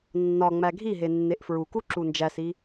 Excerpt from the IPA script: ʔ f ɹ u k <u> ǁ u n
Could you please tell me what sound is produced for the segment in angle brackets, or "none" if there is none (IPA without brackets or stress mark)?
u